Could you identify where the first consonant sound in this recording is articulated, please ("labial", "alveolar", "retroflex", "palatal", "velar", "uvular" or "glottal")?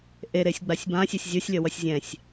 glottal